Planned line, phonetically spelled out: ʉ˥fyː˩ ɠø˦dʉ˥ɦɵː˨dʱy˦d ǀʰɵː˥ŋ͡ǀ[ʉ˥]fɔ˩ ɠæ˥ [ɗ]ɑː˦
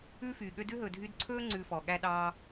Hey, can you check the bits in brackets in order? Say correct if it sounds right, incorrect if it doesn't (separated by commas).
incorrect, correct